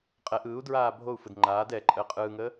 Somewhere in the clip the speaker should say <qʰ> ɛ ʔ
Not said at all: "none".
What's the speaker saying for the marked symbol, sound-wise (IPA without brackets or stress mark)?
qʼ